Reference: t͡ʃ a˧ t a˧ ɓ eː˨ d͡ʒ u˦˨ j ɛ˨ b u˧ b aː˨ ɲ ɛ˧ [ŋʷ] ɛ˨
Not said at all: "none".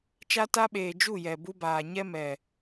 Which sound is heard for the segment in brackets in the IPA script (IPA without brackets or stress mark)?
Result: m